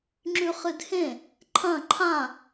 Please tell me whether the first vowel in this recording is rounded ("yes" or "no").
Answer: yes